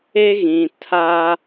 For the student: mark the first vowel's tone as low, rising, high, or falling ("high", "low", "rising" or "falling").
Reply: high